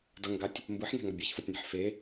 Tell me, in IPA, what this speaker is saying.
d ʌ ŋ ɡ a tʲ | m b ɯ ħ n ɛ̤ ŋ ʌ bʲ a ç f ʌ tʲ n e̤ ħ f e

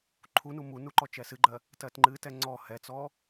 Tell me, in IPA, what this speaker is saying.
ǃʰ u n u m u n u ǃ ɔ t͡ʃ ɛ s ɨ ɡ͡ǃ ɜ | t ɜ t ŋ͡ǃ ɨ t ɛ ŋ͡ǀ ɔ h ɛ t͡s ɔ

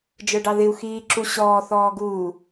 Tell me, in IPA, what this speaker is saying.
d͡ʒ ə˞ ɖ ɑ ð ɪ u̯ x iː ǁ u ɕ ɔː θ ɔː ɡ uː

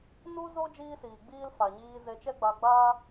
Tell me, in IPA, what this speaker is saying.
n u˦ z o˦ d͡ʒ iː˦ s iː˨ ɡ͡b iː˦ l f a˨ ɲ iː˧ z e˧ t͡ʃ ɛ˦ ɡ͡b a˧ ɡ͡b aː˦

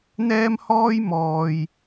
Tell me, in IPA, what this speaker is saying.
n̪ ɛː˥ m h ɔː˥ j m ɔː˧ j

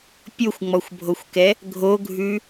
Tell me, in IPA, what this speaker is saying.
pʲ o xʷ ŋ͡m ɔ xʷ bʱ o xʷ k ɛ | ɡʱ o ɡʱ ʉ

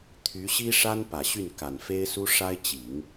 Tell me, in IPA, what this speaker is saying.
t̪ʰ y˧˥ ɕ i˥ ʂ a˥ n p ä˨˩ ɕ y˥˩ n k a˨˩ n f e˥ ɪ̯ s u˥ ʂ a˥ ɪ̯ t͡ɕ i˨˩˦ ŋ

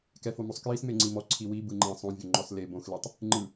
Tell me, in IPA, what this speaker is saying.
k ɛ f o m o sˤ k j i s m e ŋ͡ǀ i m ɔ ǀʰ i w i b ɯ ŋ͡ǃ ɛ̃ sˤ õ vʲ o ŋ͡ǃ ɔ s l e b õ x l i tˤ | ŋ͡ǃ ɯ

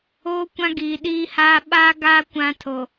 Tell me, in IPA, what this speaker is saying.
oː˦ kʷ ã˦ ɡ iː˨ ɗ iː˦ h aː˦ ɓ aː˦ ɡ a˦ kʷ ã˦ tʰ o˨

